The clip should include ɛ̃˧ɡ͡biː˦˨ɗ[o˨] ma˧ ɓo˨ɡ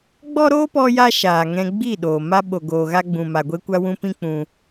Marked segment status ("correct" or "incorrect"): incorrect